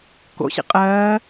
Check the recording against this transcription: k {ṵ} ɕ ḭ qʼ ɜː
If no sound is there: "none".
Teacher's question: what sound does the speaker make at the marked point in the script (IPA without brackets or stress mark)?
o̰